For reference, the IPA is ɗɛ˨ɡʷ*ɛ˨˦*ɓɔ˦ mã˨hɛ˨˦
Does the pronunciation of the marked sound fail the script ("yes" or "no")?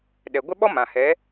yes